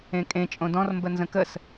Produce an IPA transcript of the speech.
ẽkʼẽ t͡ʃʼõdɔ̃rmbə nzə̃kəs

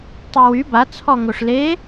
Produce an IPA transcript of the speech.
tˤewy ba t͡sʰɔŋoʂle

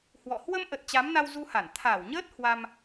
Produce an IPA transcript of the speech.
hwɔ̰˧˨ hwə˧mʔə˨˩t̚ t͡ɕa˨˦m na˧wzu˧ha˧˩n t̪ʰaː˧˩wɲəː˦˥t̚ hwa˧m

